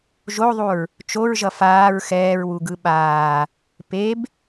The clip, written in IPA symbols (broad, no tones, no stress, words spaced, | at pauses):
ʒoðˤuɹ | t͡ʃoɹʒʌ faːɹ xɛːɹwuɡɯ ɓaː | peb